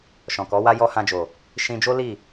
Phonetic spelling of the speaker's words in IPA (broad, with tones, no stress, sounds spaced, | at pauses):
ʃ ɔ̃˨ k ɔ˨˦ w a˦ j ɔ˦ h ã˧ d͡ʒ o˨ | ʃ ĩ˧ d͡ʒ o˦ l i˦˨